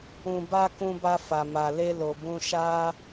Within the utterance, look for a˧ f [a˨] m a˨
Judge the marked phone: correct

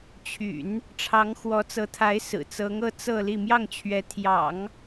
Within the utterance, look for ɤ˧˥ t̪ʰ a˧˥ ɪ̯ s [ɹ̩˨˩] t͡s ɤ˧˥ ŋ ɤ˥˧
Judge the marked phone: correct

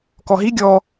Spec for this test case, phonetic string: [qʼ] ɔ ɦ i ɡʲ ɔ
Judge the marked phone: incorrect: k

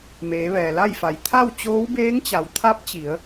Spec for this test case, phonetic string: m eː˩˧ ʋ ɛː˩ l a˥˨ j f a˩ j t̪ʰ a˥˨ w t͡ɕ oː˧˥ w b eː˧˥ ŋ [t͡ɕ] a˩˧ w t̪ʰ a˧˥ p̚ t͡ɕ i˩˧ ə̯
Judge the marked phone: correct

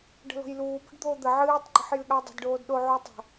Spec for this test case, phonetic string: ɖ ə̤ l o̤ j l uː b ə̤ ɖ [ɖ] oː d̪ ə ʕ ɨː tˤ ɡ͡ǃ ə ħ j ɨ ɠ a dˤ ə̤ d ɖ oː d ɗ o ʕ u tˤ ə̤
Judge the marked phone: incorrect: d̪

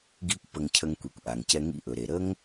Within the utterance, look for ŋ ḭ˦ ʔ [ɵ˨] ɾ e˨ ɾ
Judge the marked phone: correct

